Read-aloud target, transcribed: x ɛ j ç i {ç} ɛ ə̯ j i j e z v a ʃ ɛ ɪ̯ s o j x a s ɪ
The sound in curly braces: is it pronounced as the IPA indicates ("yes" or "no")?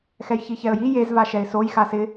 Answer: yes